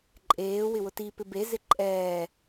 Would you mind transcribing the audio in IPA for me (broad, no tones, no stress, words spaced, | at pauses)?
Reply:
ǃʼeː wɪwʊti pɪbe zɪǃʼɛː